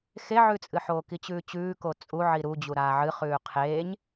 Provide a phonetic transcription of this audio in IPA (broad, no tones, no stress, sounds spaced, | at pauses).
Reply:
x e ʕ ʉ t͡sʼ ɨ ħ oː k i t͡ɕ ʉː t͡ɕ ʉː k o t͡sʼ u ʕ i ɾ u d͡ʑ u ɾ aː ʕ ɨ χ ʉː qʰ eː ɲ